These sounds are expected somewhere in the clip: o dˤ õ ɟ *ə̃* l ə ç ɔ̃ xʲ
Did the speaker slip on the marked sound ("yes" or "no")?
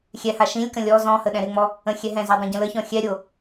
no